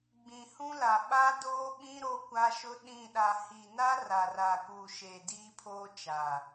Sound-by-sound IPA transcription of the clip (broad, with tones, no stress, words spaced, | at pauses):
ɡ͡bĩ˨hũ˦la˨ ɓa˦doː˦ɓĩ˦ ɾo˦kʷa˦ʃʊ˦ ɗĩ˦˨ ɗa˨hi˨na˦ ra˨ra˨kuː˨ ʃeː˨diː˦pʰoː˦ t͡ʃa˨